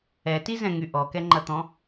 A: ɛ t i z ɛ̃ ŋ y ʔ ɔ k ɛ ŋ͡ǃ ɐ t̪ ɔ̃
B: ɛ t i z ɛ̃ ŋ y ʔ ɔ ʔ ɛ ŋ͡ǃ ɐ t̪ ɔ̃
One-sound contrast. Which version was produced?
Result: A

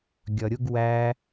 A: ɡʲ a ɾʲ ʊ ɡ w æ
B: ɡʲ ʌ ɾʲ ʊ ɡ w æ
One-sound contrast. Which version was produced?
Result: B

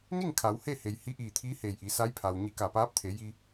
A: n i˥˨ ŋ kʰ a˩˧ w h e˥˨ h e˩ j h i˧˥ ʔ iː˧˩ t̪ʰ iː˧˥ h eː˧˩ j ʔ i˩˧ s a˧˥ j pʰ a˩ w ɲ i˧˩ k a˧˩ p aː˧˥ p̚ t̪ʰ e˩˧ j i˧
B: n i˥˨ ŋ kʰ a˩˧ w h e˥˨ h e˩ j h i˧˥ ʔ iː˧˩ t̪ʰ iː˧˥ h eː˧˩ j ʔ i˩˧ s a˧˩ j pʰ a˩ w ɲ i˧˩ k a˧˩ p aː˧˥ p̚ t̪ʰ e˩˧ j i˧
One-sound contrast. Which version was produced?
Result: A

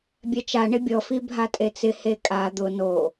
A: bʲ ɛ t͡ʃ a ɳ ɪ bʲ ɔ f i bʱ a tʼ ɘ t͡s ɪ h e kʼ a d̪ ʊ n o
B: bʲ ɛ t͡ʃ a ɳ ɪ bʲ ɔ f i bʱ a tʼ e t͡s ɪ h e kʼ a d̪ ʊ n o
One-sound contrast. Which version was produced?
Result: B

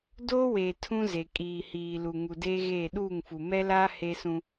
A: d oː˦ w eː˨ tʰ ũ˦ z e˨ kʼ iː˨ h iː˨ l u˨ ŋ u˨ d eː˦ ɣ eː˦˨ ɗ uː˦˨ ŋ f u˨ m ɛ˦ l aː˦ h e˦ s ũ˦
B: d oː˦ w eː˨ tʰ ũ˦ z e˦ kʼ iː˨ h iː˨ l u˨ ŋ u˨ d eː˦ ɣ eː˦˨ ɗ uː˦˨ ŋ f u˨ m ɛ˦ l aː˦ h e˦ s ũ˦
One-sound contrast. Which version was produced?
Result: A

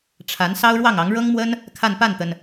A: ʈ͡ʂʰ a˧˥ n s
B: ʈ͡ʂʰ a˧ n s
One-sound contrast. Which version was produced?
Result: A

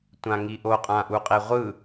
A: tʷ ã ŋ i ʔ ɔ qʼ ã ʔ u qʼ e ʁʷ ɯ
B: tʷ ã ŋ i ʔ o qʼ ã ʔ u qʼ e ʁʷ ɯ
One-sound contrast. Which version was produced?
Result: B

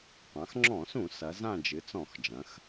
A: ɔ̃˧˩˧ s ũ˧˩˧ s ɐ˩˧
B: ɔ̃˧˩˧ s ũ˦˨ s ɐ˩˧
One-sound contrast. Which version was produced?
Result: A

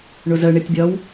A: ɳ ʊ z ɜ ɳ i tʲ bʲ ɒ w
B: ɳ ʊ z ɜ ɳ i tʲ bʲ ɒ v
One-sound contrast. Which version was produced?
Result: A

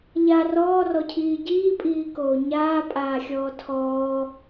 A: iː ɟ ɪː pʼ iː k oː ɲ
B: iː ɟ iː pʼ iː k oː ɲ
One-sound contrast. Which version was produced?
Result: B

